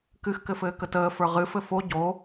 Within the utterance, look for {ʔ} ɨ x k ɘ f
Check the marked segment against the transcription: incorrect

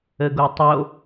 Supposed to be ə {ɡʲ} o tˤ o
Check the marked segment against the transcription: incorrect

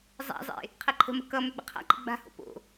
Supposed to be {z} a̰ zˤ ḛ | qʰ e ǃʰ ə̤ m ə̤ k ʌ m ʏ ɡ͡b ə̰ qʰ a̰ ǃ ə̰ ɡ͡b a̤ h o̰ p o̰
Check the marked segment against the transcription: incorrect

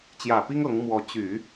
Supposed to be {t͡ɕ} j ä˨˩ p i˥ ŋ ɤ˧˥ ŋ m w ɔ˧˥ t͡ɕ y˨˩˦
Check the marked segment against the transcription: correct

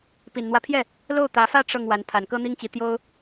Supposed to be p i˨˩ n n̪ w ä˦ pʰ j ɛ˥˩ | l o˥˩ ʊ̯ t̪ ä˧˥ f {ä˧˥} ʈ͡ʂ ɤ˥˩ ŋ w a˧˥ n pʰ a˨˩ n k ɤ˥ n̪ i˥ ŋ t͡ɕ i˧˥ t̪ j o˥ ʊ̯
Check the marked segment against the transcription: incorrect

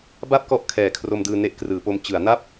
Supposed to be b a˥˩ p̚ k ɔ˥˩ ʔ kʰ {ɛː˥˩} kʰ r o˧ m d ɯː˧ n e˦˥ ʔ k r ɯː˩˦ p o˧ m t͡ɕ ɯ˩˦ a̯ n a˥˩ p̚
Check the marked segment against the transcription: incorrect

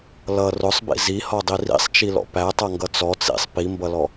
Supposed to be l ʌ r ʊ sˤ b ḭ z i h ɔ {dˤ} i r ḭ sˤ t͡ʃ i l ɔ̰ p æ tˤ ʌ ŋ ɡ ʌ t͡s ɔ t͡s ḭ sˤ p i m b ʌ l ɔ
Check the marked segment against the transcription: correct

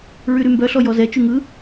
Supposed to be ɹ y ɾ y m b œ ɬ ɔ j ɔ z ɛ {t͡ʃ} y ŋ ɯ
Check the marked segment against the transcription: correct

